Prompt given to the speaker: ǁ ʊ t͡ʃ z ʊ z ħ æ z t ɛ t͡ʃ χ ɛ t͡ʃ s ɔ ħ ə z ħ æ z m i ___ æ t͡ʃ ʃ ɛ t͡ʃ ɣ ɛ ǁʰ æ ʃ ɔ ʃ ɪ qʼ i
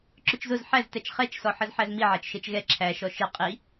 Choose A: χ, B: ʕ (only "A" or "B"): B